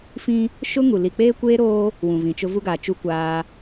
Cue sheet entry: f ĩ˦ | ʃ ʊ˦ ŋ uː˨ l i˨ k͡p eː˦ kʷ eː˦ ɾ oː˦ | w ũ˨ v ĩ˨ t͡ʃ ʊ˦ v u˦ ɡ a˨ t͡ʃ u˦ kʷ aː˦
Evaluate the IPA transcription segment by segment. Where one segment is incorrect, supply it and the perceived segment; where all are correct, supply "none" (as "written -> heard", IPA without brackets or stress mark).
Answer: uː˨ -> u˨